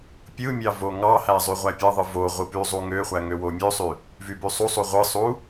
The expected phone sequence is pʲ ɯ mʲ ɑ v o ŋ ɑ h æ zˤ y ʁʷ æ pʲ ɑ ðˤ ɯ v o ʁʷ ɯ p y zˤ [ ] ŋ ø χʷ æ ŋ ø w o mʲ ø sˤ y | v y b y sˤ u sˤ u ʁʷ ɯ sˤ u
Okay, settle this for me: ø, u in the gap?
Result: u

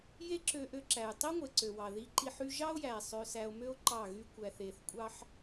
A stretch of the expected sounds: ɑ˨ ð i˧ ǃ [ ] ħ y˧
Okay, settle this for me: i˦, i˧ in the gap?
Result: i˧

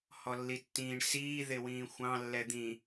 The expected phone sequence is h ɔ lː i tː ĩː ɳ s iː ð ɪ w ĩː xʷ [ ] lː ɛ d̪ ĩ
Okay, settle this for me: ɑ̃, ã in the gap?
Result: ɑ̃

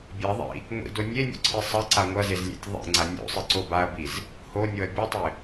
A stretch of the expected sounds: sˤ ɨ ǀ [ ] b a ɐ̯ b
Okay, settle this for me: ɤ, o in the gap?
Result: o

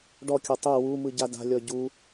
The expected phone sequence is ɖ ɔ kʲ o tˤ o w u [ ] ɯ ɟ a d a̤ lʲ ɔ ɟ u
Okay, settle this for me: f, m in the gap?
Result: m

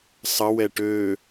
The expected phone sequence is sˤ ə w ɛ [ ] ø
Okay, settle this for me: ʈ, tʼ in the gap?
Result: ʈ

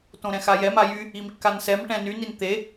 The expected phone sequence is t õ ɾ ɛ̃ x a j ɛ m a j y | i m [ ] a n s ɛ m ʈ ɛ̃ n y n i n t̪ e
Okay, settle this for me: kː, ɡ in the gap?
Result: kː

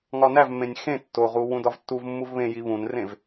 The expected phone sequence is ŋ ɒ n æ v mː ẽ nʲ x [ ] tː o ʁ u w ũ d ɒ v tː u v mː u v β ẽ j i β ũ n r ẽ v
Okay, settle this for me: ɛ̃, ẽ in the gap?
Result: ẽ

